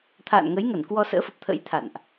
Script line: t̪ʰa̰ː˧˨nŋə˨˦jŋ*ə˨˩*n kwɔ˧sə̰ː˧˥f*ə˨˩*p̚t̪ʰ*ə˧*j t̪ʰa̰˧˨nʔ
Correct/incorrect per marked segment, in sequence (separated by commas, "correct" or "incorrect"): incorrect, correct, incorrect